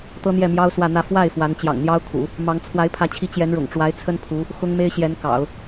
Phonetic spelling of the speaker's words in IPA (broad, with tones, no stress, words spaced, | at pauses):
t̪ɤ˥n̪jɛ˥˩mjɑ˥ʊ̯ swä˥˧n̪ä˥˧ fwa˥˩ɪ̯ fwa˧˥n t͡ɕjɑ̰˨˩ŋn̪jɑ˥ʊ̯ kʰṵ˨˩˦ | mɑ˧˥ŋ t͡sʰwa˧˥ɪ̯pʰä˧˥t͡ɕʰi˧˥ t͡ɕjɛ˧˥nɻʊ̰˨˩ŋ ʈ͡ʂwa˧˥ɪ̯t͡sʰə˥n pʰu˧˥ | xʊ˥ŋme˥ɪ̯ ɕjɛ˧˥n kɑ̰˨˩˦ʊ̯